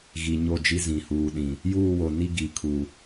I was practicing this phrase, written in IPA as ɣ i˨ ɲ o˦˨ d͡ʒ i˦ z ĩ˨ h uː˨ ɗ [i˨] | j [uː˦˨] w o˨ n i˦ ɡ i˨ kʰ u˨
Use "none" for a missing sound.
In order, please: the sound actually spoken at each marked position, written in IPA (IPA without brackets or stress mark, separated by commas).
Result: ĩ˨, uː˦˨